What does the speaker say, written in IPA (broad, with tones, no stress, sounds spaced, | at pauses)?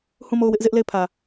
h ũ˦˨ m o˦˨ ʊ̯ w ɪ˦ ʔ z ɪ˦ ʔ l e˦˨ ɪ̯ pʰ ä˨